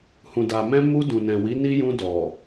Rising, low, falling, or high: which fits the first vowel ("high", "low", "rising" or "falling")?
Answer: low